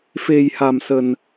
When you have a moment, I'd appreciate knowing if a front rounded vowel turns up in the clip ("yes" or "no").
no